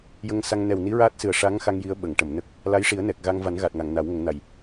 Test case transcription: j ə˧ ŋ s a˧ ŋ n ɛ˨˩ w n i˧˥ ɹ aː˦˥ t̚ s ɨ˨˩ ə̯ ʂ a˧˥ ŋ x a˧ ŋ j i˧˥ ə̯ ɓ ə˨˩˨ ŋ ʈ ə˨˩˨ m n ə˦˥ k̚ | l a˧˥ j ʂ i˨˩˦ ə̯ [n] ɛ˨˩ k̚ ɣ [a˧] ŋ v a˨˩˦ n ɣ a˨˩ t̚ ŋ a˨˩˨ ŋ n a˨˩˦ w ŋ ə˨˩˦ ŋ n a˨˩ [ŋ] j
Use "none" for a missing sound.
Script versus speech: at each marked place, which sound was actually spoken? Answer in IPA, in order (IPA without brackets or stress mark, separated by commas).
n, a˧, none